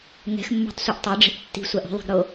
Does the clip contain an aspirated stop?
no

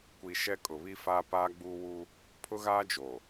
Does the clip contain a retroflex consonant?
no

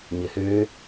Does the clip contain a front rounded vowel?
yes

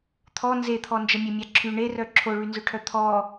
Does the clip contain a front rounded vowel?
yes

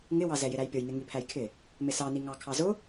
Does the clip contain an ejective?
no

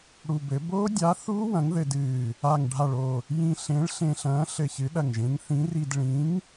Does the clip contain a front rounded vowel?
no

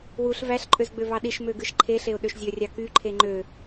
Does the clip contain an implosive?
yes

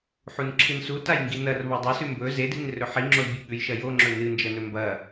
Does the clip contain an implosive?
yes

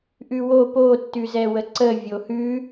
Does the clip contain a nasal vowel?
no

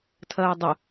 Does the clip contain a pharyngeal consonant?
no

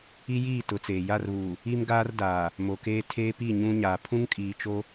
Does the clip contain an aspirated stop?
yes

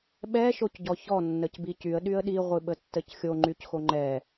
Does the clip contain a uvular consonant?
yes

